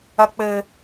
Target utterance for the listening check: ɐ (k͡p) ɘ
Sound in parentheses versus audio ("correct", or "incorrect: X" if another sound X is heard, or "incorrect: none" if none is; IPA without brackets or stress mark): correct